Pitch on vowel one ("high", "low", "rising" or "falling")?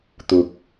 low